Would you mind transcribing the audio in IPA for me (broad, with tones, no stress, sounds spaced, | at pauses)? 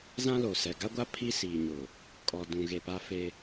z ã˦ l o˨ s ɛ˨ ɡ a˦ ɡʷ a˦ pʰ i˦ s iː˨ ɲ ʊ˨ | kʼ ɔ˨ d ũ˨ ɣ e˨ p a˦ f e˦